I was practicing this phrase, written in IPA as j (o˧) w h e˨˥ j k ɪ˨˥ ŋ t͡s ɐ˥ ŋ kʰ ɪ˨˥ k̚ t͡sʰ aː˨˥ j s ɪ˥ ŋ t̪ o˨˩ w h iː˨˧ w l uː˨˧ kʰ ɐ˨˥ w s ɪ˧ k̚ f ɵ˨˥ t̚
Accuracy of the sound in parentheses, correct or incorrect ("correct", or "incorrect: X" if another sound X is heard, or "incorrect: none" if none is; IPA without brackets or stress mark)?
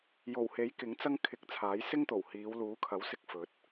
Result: incorrect: o˨˩